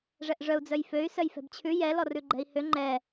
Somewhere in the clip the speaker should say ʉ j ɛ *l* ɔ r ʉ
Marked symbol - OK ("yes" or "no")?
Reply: yes